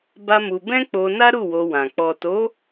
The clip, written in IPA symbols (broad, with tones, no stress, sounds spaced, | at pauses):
b a˦ m u˧ b ɛ̃˦ k͡p o˧ n a˦ ɾ u˦˨ w o˧ w ã˨ k͡p ɔ˨ t o˨˦